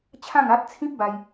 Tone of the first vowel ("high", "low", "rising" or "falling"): falling